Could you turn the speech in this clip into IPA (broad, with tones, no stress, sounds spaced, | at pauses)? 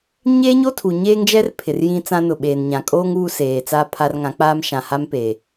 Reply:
ɲ eː˦ ɲ o˦ tʰ u˨ ɲ eː˦ ŋ d͡ʒ ɛ˦ r pʰ ɪ˨ r j ĩ˦ t͡s ã˦ n ʊ˨ ɓ eː˨ n ɲ ã˨ kʼ oː˦ ŋ uː˦ s eː˨ t͡s aː˦ pʰ a˦ r ŋ ã˨˦ k͡p aː˦ m ʃ ã˨ h a˦ m p eː˨